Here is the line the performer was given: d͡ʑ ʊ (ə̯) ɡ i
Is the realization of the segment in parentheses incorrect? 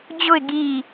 yes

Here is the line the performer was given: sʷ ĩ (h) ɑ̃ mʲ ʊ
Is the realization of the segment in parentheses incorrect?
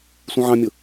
yes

